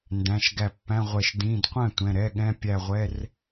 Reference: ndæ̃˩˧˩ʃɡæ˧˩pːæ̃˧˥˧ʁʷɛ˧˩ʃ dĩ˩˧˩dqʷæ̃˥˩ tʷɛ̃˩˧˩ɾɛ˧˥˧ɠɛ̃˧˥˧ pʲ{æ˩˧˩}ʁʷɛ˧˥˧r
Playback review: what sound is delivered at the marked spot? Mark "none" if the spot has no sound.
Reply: æ˧˩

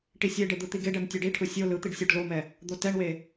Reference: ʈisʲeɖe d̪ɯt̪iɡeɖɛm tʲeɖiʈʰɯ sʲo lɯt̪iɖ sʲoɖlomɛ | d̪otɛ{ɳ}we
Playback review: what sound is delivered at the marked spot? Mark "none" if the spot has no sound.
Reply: ɳ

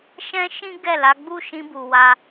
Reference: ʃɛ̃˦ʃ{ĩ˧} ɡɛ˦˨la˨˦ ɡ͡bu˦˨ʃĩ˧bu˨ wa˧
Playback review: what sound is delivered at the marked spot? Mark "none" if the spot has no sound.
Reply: ĩ˦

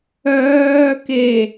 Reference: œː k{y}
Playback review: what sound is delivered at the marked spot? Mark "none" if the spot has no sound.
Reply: e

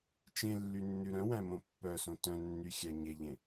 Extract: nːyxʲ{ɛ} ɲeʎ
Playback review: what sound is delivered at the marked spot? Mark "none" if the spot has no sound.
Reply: æ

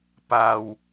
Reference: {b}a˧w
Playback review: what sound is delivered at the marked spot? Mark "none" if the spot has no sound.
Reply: p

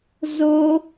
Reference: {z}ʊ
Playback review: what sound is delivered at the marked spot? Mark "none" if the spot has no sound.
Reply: z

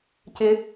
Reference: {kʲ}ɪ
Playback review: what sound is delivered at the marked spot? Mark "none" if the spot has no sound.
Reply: c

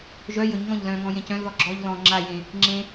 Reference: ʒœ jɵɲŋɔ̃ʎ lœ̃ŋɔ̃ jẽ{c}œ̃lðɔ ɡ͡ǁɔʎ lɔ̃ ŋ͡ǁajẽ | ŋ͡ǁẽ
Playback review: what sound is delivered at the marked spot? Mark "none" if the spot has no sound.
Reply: c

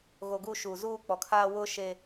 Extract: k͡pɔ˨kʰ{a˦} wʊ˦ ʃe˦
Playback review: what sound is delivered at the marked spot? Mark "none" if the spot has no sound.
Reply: aː˦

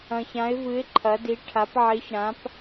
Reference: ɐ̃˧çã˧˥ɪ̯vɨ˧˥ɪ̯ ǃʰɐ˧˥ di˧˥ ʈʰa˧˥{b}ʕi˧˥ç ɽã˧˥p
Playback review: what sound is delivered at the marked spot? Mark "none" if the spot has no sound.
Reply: p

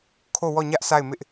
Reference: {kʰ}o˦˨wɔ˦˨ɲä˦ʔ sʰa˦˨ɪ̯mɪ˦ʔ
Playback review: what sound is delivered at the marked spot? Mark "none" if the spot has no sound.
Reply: kʰ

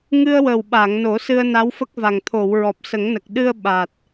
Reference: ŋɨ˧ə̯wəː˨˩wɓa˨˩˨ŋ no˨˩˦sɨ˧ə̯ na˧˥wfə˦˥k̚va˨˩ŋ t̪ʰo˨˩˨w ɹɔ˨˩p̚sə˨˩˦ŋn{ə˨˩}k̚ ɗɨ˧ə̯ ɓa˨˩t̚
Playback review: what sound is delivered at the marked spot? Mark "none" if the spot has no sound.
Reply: ə˨˩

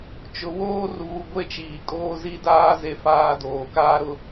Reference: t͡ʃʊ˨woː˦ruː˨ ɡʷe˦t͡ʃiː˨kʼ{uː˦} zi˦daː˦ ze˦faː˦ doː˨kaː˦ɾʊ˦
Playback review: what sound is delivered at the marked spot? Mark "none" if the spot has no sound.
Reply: oː˦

